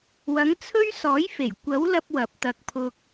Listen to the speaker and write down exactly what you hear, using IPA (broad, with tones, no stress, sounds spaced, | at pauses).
w ɐ˨˥ ŋ t͡sʰ ɵ˥ ɥ s ɔː˨˥ j f e˨˩ j kʷ ɐ˨˥ w l ɐ˧ p̚ w ɐ˨ p̚ t̪ ɐ˧ k̚ pʰ ʊ˧ k̚